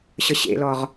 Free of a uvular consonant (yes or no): no